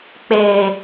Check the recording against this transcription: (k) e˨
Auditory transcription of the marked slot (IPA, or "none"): k͡p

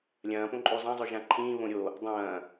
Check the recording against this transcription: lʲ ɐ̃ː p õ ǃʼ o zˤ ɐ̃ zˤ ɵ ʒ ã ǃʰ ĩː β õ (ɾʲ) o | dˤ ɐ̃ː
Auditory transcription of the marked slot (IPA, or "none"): ɾʲ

